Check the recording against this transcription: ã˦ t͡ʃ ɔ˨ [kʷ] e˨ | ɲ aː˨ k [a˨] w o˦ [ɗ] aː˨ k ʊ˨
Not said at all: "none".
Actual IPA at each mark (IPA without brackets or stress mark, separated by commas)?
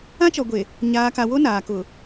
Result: ɡʷ, a˨, n